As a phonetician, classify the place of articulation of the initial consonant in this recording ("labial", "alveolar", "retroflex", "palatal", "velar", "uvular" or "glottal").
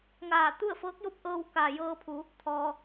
velar